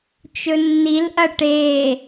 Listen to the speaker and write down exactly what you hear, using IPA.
t͡ʃ ɵ nː i l ʔ ɐ ʈ e

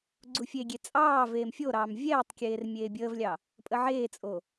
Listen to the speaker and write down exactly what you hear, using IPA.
ɡ͡ǀ u fʲ e ɡʲ e t͡sʼ ɑː v eː m fʲ o ɾ ɑː m vʲ ɛː tˤ kʲ eː r mʲ eː bʲ əː v lʲ ɑ | pʼ ə ʕ eː t͡sʼ o

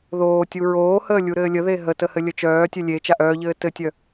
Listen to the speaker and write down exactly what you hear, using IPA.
ð oː tʲ u ɹ oː h əː lʲ u ɾ ɘː lʲ ə ð e ɦ ə t ə h ɘ lʲ ə t͡ʃ œː tʲ œ lʲ e t͡ʃ a ʔ œː ʎ ɘː t ɘ tʲ œ

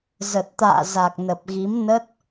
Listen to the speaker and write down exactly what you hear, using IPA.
z ə˨˩ t̚ t̪ a̰ː˧˨ z a˨˩ k̚ n ə˨˩ p̚ ɣ i˨˦ m n ə˦˥ t̚

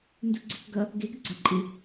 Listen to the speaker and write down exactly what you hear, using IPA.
n d u ɡ͡ǀ e k ɡ ʌ | ɡ e ɡ ə ɡ͡ǀ a ǃʼ ɨ

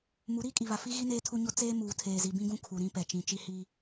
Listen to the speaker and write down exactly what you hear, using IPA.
m u˨˦ ɾ iː˦ kʼ i˨ β a˨ f i˦ ɣ i˦ n eː˦ tʰ u˦ ɲ o˦ t͡s eː˦ m uː˨ tʰ eː˨ z i˨ b ĩ˦ ɡ ũ˦ kʰ u˨ ɾ ĩ˦ p ɛ˨ t͡ʃ ĩ˨ t͡ʃ i˦ h iː˦

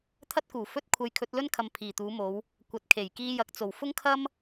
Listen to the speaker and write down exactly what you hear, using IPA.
t̪ʰ ɐ˥ t̚ k uː˨˩ f ɵ˥ t̚ kʷʰ ɐ˧ j kʰ ɵ˨˥ t̚ l ɵ˥ n kʰ ɐ˨ m pʰ iː˨˩ t̪ uː˨˧ m o˨˧ w | kʷ ɐ˨ t̚ kʰ e˨˩ j k iː˧ j ɐ˨ k̚ t͡s o˨˩ w f ʊ˥ ŋ kʰ ɐ˥ m

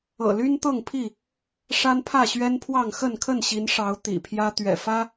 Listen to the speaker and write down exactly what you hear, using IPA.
ɤ̰˨˩ l y˦ n t̪ ɤ˥˨ ŋ pʰ i˥˨ | ʂ a˦ n pʰ ä˥˨ ɕ ɥ ɛ˦ n pʰ w ɑ˥˨ ŋ x ə˥˨ n kʰ ə˥˨ n ɕ i˨˦ n ʂ ɑ˨˦ ʊ̯ t̪ ḭ˨˩ pʰ j ä˦ t̪ ɥ ɛ̰˨˩ f ä˦

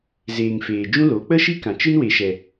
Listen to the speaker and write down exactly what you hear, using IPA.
z eː˨ ŋ f eː˨ d͡ʒ ũ˧ l o˨˦ k͡p ə˦ ʃ i˦ k ã˨ t͡ʃ ɨ˦ n w e˨ ʃ ɛ˨

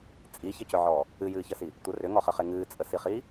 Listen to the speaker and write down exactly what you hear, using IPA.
t͡sʼ i ç ə c ʏ ʕ ɔː | ɨ j ɨː ç ə s i | tʷ ə r ʏ ŋ ɔ χ ə χ e ŋ ɨː t͡sʼ ə s i χ iː

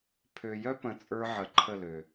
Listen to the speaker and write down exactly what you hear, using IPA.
pʰ ø˨ j œ˦ p ə̃˨ t͡sʼ ə˞˦ ʕ ə˨ ǃʰ ə˦˨ l ø˨

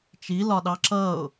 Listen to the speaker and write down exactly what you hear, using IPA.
t͡ʃ i l ɒ ɗ ɑ ǁ ʌ ʊ̯

